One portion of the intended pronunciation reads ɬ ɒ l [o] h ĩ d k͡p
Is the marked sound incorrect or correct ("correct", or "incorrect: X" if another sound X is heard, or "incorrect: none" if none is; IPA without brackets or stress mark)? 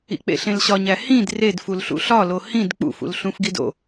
correct